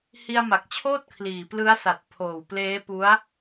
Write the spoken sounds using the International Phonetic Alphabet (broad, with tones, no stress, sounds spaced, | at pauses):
h i˧ a̯ m a˨˩ k̚ t͡ɕʰ oː˥˩ t̚ kʰ l iː˨˩ p l ɯ˦˥ a̯ s a˨˩ t̚ pʰ oː˨˩ w p l eː˦˥ p u˦˥ a̯